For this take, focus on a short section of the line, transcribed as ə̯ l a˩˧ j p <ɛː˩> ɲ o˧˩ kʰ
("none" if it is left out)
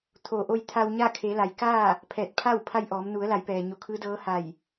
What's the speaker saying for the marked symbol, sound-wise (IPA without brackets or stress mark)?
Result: ɛː˩